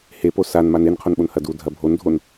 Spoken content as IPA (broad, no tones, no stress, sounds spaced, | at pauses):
h e p o s a n m a n e n qʰ o n ɓ o n h ɐ d u dʱ ɐ bʱ o n dʱ o n